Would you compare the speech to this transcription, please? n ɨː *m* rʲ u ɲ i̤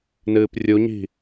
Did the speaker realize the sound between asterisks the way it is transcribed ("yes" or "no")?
no